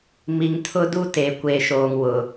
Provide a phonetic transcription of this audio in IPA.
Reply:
m i˨ ŋ tʰ ʊ˦ d u˦ t e˨ kʷ eː˨ ʃ oː˨ ŋ w ʊ˨

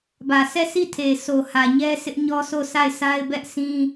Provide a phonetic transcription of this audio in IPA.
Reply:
b ä˨ s ɛ˦˨ sʰ i˦˨ tʰ e˨ sʰ o˨ h ä˨ ɲ ɛ˦ sʰ ɪ˦ ʔ ɲ ɔ˦ s o˦˨ s a˦˨ ɪ̯ s a˦ ɪ̯ b ɛ˦ ʔ sʰ ĩ˦

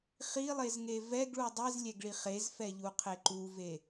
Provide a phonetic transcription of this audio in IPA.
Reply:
χ i lˠ e z ŋ e v ɛ ɡ ɭ u dˤ i z lʲ ɛ ɡ ɭ i χ e z f ɛ ʎ u qʰ e ǃ u v e

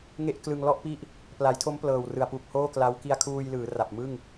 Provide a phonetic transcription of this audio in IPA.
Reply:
ŋ e˥˩ ʔ k l ɯ˧ ŋ l ɔ˥˩ ʔ p i˦˥ ʔ | p l a˩˦ j tʰ o˦˥ m p l ɤː˨˩ w r ɯ˨˩ a̯ p u˨˩ k̚ h oː˥˩ k l a˦˥ w k i˧ a̯ kʰ uː˧ j l ɯː˩˦ r a˨˩ p̚ m ɯ˥˩ ŋ

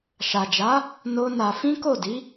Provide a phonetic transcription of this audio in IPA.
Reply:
ʃ a˨ d͡ʒ a˨˦ | n o˦ n a˧ f ĩ˦ k o˦˨ d i˨˦

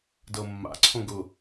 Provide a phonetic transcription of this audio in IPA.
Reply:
d ɤ mː a̰ ǀʰ õ ɡ ʊ

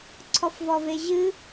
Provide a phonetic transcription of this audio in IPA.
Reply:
ǀʰ ɔ f v ɔ v e ʑ ɨ

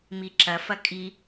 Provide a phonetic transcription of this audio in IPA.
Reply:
m i ǁ ɐ f ɐ kʼ i

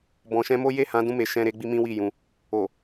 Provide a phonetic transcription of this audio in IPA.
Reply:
b ɔ̃˨ ʃ ɛ̃˧ m o˦ j e˦˨ h ã˨˦ d ũ˧ m e˨ ʃ ɛ̃˧ ɾ e˦ ɡ͡b i˦ m ĩ˦ w i˦˨ j ũ˧ | o˨

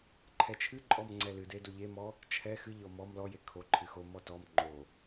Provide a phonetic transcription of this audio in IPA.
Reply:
ǃʰ ɛ t͡ʃʰ ɨ ǃʼ ɔ m ŋ͡ǀ ɛ l ɨ d e d o ʎ e m ɔ | t͡ʃʰ ɛ x ɨ ʎ ɔ m ɔ m l ɔ j e kʰ o ǃʰ ɨ x o m ɔ t ɔ m ŋ͡ǃ o

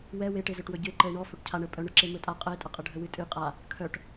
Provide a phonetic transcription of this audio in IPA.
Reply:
w ɛ w e ʈ e z ɵ ʈ w ɵ ɟ ɨ e̯ ǃ ə e̯ ɳ ɔ f ɵ ʈ cʰ a ɳ ə pʼ œ ɳ ɵ ǁ e m ɵ tʼ a qʼ ə e̯ tʼ ə qʼ ə ɖʱ ə w ɨ tʼ ɨ qʼ a | kʰ œ ʈ

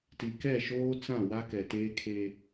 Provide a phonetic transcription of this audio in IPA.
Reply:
t i˨ k ɛ˦˨ ʃ oː˦ t͡s ã˦˨ w a˦ k ɛ˨ t eː˦ kʰ e˦

